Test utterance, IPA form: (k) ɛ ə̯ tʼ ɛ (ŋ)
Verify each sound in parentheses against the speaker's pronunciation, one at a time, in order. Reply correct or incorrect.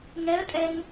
incorrect: ŋ, correct

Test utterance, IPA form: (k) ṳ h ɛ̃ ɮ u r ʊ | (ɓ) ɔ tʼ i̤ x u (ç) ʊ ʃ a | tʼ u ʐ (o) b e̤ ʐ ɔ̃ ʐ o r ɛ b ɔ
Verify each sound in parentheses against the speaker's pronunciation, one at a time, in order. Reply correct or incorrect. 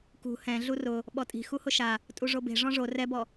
correct, correct, incorrect: h, correct

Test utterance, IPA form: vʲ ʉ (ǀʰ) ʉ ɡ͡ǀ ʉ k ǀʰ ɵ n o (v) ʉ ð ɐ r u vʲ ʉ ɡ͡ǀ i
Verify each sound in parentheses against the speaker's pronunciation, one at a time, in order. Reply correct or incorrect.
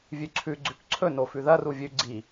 correct, incorrect: f

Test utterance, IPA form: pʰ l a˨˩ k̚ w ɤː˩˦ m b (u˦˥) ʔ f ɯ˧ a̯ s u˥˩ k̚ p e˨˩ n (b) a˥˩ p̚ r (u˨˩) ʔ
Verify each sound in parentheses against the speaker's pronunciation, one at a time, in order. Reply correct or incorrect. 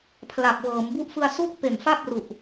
correct, incorrect: f, correct

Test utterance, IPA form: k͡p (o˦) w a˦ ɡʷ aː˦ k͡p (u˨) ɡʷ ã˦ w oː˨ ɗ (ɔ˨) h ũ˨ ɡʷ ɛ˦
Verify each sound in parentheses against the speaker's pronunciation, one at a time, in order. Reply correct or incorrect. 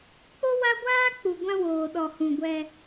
correct, correct, correct

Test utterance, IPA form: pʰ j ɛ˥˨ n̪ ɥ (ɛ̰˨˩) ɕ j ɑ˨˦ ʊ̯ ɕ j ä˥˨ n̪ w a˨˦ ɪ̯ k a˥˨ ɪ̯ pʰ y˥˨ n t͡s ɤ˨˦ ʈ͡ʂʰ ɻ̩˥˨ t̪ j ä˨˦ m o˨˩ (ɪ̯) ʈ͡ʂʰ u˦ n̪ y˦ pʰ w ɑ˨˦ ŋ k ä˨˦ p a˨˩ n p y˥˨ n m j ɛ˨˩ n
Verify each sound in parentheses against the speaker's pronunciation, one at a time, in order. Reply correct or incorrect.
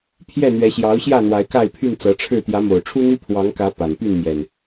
incorrect: ɛ˨˦, incorrect: ʊ̯

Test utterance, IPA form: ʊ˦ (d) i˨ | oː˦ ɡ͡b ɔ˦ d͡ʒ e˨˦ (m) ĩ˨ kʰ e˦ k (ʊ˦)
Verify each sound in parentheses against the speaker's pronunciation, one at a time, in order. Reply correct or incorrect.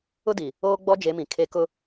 correct, correct, correct

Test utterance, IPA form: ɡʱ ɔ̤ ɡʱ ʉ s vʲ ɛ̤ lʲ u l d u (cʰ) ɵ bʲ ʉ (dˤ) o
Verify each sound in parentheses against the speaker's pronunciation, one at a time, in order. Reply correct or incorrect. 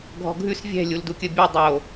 incorrect: kʲ, correct

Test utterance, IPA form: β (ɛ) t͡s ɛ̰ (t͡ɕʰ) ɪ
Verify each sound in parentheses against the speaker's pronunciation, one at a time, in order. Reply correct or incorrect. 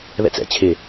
incorrect: ɛ̰, correct

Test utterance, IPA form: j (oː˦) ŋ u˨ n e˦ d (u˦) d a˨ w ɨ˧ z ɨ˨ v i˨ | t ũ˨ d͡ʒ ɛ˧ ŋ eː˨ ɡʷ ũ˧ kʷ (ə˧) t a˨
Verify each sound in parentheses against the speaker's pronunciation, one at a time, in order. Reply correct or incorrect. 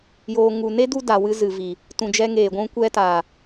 incorrect: oː˨, correct, incorrect: ɛ˧

